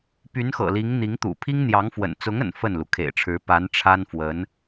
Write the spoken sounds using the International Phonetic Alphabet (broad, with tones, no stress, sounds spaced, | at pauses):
p y˧˥ n x ɤ̰˨˩ l i˧˥ ŋ n̪ i˧˥ ŋ t̪ ṵ˨˩ pʰ i˥ ŋ n̪ j ɑ˧˥ ŋ f w ə̰˨˩ n t͡s ʊ˧˥ ŋ ə̰˨˩ n f ə˥˩ n l u˩ kʰ ḛ˨˩ ɪ̯ ʈ͡ʂʰ ɻ̩˧˥ p a˧˥ n ʈ͡ʂʰ a˥ n f w ə˧˥ n